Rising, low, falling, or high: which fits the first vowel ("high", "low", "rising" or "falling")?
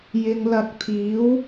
low